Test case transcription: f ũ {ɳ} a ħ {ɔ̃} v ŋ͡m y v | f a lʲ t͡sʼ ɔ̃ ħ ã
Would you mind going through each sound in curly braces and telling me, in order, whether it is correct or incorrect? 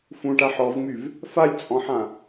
incorrect: ʈ, incorrect: ɔ

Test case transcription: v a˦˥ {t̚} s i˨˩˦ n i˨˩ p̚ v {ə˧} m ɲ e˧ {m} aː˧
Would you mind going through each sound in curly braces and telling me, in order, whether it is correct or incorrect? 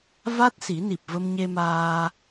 correct, correct, correct

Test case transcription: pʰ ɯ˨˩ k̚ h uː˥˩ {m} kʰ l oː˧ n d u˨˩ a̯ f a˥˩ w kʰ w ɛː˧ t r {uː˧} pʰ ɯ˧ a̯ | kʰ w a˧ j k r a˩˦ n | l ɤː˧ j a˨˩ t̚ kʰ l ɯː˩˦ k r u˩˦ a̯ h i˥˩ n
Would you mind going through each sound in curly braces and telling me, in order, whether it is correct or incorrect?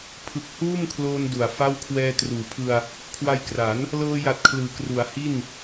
correct, incorrect: uː˩˦

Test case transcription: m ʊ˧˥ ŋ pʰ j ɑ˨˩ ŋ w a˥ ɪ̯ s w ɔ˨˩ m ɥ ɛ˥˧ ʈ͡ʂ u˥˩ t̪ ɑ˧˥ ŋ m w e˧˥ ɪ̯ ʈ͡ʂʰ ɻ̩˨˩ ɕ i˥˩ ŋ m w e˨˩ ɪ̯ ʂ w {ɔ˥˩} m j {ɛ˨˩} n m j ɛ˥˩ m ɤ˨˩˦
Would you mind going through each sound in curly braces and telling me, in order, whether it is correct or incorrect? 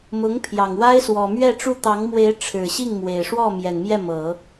correct, correct

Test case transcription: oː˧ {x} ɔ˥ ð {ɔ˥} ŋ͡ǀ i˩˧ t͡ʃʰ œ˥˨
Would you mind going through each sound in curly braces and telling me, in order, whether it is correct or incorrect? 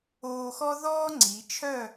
correct, incorrect: ɔː˥

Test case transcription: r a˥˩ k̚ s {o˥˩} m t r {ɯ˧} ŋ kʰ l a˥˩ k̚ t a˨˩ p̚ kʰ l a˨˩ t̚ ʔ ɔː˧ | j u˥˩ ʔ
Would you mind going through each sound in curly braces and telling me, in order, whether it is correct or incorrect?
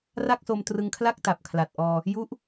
incorrect: o˧, correct

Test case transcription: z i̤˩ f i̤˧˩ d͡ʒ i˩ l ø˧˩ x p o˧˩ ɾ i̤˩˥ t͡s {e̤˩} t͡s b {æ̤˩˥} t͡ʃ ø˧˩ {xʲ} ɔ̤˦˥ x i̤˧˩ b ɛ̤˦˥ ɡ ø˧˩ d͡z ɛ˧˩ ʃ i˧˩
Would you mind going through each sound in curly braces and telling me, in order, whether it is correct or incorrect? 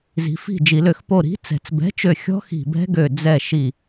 incorrect: ɛ̤˩, incorrect: ɛ̤˩˥, correct

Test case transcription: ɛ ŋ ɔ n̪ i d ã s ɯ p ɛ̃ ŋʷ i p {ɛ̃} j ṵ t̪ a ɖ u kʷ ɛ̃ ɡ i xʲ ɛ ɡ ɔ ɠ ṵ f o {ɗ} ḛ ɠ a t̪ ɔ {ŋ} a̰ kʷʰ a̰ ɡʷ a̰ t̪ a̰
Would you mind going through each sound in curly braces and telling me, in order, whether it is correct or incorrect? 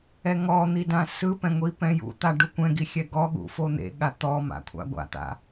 correct, incorrect: n̪, incorrect: m

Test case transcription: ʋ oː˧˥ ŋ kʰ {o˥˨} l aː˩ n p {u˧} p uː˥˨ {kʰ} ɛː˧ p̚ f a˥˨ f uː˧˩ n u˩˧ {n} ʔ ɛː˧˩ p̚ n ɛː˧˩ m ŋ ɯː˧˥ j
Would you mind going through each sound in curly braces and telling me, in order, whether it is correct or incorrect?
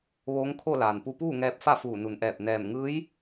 correct, correct, incorrect: ŋ, correct

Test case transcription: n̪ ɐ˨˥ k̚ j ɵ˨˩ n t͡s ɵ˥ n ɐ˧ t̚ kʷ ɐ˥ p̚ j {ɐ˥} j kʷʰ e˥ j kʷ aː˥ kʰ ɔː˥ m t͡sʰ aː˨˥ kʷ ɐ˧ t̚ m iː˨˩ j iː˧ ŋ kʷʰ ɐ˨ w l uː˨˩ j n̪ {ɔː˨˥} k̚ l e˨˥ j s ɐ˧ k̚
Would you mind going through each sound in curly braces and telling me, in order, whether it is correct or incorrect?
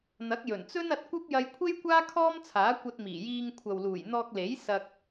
incorrect: ɐ˧, incorrect: ɔː˧

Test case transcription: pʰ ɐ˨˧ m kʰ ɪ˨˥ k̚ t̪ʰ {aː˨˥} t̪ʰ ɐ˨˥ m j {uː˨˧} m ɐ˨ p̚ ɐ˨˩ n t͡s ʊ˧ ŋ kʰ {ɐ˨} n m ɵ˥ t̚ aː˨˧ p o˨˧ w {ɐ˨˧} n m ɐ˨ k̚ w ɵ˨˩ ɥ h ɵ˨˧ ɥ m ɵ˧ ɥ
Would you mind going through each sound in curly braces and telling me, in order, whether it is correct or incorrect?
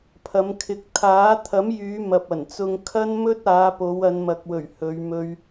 correct, incorrect: yː˨˧, incorrect: ɐ˥, correct

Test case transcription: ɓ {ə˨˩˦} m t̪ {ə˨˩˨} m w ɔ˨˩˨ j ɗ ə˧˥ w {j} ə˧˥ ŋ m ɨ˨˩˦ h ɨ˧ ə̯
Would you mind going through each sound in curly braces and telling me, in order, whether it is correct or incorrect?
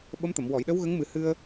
incorrect: ə˧˥, correct, incorrect: ɣ

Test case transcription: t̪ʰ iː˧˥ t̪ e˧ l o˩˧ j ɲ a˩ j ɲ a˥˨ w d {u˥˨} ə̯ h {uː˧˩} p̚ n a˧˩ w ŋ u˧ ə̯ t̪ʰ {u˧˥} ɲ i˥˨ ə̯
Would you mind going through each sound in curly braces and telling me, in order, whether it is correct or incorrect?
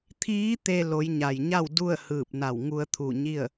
correct, incorrect: ɯː˧˩, incorrect: u˧˩

